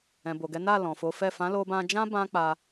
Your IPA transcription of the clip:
ɛ̃˨ b o˨ ɡ ɛ˨˦ n a˦˨ l ɔ̃˨ f o˨˦ f ɛ˦˨ f ã˨˦ l o˧ b ã˧ d͡ʒ ã˦ b ã˦ k͡p a˧

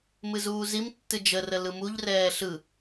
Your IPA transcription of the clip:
m ɨ z uː z i m tː ɨ d͡ʒ ə r ə l ɯ m u ʎ r ɛː ɬ ɯ

